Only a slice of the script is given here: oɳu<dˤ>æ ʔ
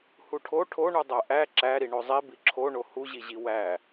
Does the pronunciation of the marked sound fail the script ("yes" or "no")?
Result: no